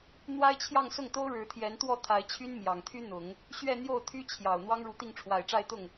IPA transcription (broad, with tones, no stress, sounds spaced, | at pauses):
n̪ w a˥ ɪ̯ t͡ɕʰ j ɑ˥˧ ŋ s ʊ˥˩ ŋ t̪ o˥ ʊ̯ ɻ ɻ̩˧˥ t̪ʰ j ɛ˧˥ n t̪ w ɔ˥˩ t̪ʰ a˧˥ ɪ̯ t͡ɕʰ y˥ n m j ɑ˨˩ ŋ t̪ʰ y˥ n̪ ʊ˨˩˦ ŋ | ɕ ɥ ɛ˥˧ n̪ j o˥˩ ʊ̯ t̪ʰ y˥ t͡ɕʰ j ɑ˨˩ ʊ̯ n̪ w ɑ˥ ŋ ɻ u˧˥ t̪ i˥˩ ŋ ʈ͡ʂʰ w a˨˩ ɪ̯ ʈ͡ʂ a˥˧ ɪ̯ t̪ ʊ˥˩ ŋ